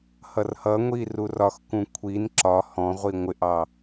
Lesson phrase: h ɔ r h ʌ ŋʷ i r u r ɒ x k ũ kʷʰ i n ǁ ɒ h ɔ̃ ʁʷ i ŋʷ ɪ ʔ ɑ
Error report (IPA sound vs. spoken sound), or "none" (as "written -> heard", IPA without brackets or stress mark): ɔ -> ʌ